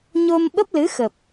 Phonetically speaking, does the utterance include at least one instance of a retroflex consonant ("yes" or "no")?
no